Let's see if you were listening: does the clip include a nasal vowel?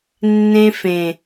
yes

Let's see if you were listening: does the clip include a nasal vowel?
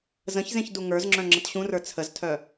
yes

